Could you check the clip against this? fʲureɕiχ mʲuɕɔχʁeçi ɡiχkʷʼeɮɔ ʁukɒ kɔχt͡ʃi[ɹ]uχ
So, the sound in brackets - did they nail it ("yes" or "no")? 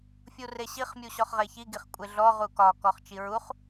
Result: yes